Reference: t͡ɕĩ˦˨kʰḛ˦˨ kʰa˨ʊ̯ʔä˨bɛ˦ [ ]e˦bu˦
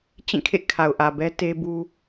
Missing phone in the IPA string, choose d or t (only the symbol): t